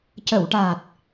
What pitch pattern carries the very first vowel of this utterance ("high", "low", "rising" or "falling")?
low